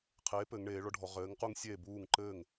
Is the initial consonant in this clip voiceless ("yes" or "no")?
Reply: yes